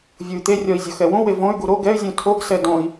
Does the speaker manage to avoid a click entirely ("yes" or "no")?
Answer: yes